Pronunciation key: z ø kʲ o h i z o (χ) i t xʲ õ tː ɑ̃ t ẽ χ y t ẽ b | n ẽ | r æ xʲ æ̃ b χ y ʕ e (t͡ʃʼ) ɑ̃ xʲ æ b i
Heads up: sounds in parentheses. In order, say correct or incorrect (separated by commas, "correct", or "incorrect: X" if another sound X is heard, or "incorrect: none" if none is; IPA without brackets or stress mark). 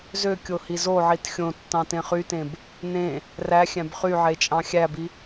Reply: incorrect: ʕ, correct